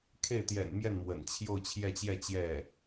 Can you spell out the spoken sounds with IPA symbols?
kʰ e˥˩ ɪ̯ t̪ j ɛ̰˨˩ n m j ɛ˥˩ n m w ə̰˨˩ n t͡ɕʰ j o˥˧ ʊ̯ t͡ɕʰ j ɛ˥˧ t͡ɕ j ɛ˥˧ t͡ɕ j ɛ˥˩

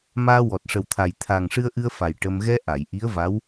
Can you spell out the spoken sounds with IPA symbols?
m aː˧ w ɔ˨˩ t̚ ʂ ə˨˩ w t̪ʰ a˨˩ j t̪ʰ aː˨˩ ŋ ʂ ɨ˧ ə̯ ʔ ɨ˧ ə̯ f a˨˩ j ʈ ə˧ m ɣ ɛ˧ ʔ a˨˩˨ j ʔ i˧˥ ə̯ v a˧˥ w

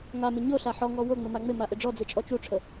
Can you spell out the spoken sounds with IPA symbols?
ŋ a m ɪ ɲ o ɬ a ħ ɔ ŋ ɔ w o ŋ͡m ɪ m a ŋ͡m ɪ m a ʔ ɪ ɖ͡ʐ ɔ d͡z e t͡ʃʼ ɔ t͡ʃ u ʈ͡ʂʰ ə

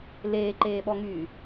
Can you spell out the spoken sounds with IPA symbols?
l eː ǃ eː ɓ ɔ ŋ yː

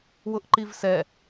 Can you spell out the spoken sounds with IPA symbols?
w ʊ ʔ ǃ i v s ɛ

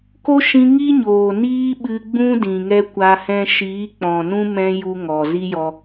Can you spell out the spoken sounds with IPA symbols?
k o˦ ʃ ĩ˧ ŋ i˦ ɲ oː˨ n iː˦ ɓ ɨ˧ ɡ͡b ũ˦ d ĩ˨ ŋ ɛ˦ kʷ a˧ h ɛ̃˦ ʃ iː˨˦ k͡p ɔ̃˨ n ũ˦ m ɛ̃˦ j u˦ ŋ ɔ˨ z i˦ j ɔ˧

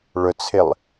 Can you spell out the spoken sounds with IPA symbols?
ɭ ʊ t͡sʰ ɪ lˠ

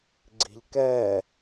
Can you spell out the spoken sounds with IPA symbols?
ɡ͡ǀ i̤ ʎ k ɛ

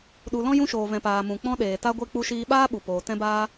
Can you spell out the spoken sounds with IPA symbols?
ɗ u˨ l ɔ̃˦ j ũ˧ ʃ oː˨ v ɛ̃˨ p aː˨ m ũ˨ k͡p ɔ̃˧ ɗ eː˨ t a˦ ɡʷ e˦ k͡p u˧ ʃ iː˧ ɓ aː˦ ɓ u˨ p oː˨ t ɛ̃˧ b aː˧

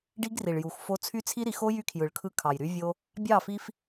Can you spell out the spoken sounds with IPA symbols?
ɖ i˦ ɡ r i˨ ɭ j u˨ x f o˦ t͡sʰ y˦ t͡sʰ i˦ ɾ i˨˦ x o˦ j y˦ kʰ j ɯ˨ ɭ kʰ ɯ˦ kʰ ɑ˨ j ɾ y˦ vʲ o˦ | bʲ ɑ˦˨ f i˦ f

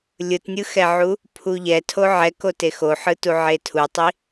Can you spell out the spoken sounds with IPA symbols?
lʲ ɯ t nʲ ɯ x ɛ ʕ u | pʰ u ʎ ɛ tʰ o ʕ ɛ k o t e x o ħ ɯ t u ʕ e tʰ u tˤ i

